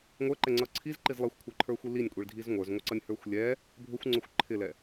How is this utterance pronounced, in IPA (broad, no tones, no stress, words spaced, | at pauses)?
ŋʷə˞ǃɛŋ͡ǀʌ ǀʰizǃiz lˠɛxʷkʷʰə˞ǃʰə˞xʷi linʲkʷʼiɭdʱiz ŋʷə˞zŋʷʌǀʌnʲhə˞xʷ lʲɛ | bʱʊxʷŋ͡ǀʊxʷ ǃʰɪlɛ